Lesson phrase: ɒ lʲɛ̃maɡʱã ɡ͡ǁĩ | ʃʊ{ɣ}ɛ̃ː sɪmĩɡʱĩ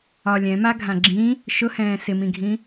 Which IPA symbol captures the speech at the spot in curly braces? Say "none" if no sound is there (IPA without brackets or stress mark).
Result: h